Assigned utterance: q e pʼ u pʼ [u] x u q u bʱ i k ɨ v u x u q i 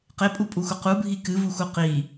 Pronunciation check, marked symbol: correct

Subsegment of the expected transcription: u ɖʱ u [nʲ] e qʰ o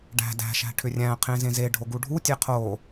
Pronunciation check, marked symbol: incorrect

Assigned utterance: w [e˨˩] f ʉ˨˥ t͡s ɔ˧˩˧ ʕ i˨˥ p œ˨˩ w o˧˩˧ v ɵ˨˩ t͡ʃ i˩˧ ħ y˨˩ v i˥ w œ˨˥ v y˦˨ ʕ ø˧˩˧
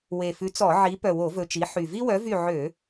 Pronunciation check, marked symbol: correct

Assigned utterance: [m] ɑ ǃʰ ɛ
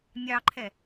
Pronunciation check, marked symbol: incorrect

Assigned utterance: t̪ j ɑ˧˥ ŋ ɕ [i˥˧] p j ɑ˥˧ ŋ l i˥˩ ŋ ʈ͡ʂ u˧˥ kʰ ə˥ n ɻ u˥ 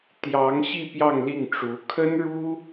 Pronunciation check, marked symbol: correct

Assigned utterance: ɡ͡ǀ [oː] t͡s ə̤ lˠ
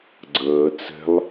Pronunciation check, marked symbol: incorrect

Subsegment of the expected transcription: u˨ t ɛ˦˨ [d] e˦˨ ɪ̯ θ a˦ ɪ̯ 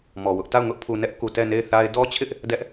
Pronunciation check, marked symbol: incorrect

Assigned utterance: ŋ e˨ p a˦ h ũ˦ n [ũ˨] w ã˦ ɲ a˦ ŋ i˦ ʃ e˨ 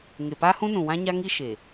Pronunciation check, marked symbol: correct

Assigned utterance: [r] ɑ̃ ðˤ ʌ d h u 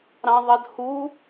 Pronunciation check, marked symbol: incorrect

